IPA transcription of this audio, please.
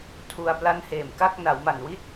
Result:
tʰ u˧ a̯ p l a˦˥ n h eː˨˩ m k a˥˩ k̚ n a˩˦ w m a˨˩ n w i˥˩ t̚

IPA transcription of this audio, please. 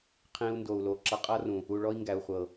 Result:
qʰ ĩ˧ u̯ n d o˨ u̯ l o˨ ǁ ʌ˧ qʼ ʌ˦ r ũ˨ | u˨ ɭ ɔ˧ i̯ ŋ ɡ æ˨ u̯ χʷ ɤ˨

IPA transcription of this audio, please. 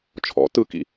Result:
t͡ʃʰ ɔ̰ t ɯ k ḭ

